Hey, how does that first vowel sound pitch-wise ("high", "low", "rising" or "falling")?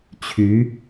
rising